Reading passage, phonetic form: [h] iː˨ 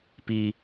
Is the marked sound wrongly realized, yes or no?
yes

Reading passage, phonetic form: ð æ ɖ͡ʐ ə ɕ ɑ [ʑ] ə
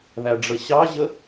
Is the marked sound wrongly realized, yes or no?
no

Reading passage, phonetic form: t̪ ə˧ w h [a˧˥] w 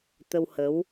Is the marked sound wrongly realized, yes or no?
yes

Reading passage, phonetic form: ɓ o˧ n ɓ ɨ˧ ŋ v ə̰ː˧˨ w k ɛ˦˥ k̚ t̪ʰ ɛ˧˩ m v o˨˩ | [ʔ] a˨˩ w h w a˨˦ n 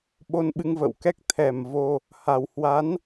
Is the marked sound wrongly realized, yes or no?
yes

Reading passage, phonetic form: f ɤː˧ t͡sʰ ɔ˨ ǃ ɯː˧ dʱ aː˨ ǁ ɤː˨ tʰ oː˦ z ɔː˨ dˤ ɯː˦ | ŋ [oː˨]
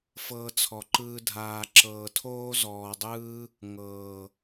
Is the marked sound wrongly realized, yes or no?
yes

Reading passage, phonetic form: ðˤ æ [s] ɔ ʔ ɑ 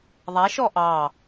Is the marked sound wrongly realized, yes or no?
yes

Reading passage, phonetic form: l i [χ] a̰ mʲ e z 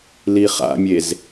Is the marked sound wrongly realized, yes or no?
no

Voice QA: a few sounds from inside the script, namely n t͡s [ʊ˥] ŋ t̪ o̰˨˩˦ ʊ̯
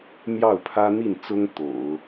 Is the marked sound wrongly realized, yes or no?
no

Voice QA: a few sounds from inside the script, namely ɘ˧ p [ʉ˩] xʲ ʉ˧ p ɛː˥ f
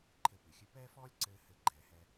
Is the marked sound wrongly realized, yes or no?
no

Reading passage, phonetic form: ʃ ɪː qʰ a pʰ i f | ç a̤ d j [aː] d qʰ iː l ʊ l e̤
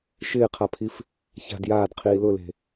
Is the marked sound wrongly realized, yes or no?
no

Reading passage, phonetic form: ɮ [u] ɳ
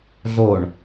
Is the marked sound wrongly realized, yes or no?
yes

